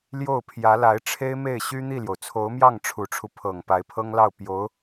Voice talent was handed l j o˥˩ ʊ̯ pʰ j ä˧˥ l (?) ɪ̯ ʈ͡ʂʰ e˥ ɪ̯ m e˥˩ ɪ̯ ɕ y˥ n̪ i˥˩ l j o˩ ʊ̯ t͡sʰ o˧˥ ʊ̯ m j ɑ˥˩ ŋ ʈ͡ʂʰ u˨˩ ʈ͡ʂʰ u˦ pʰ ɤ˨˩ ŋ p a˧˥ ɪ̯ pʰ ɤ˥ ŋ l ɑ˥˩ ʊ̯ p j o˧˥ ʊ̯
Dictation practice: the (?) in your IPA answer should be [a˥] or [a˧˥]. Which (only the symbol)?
a˧˥